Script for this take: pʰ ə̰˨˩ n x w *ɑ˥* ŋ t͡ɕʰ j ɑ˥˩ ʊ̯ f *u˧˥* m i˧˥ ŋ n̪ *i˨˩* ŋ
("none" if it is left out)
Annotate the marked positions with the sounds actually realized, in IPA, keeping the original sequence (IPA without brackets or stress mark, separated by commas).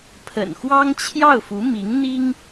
ɑ˥, u˧˥, i˥